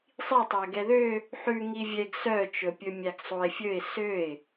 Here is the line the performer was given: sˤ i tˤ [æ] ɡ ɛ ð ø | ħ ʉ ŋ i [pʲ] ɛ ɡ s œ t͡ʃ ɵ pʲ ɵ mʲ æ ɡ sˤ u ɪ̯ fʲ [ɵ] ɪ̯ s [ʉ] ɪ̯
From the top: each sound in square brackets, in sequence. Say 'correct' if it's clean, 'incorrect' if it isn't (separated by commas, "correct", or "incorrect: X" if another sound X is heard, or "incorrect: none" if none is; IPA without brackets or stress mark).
correct, incorrect: vʲ, correct, incorrect: ø